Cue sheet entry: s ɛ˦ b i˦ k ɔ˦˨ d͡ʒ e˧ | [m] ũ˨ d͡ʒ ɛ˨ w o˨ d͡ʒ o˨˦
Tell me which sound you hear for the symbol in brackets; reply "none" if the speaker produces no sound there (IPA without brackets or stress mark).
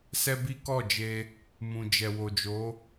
m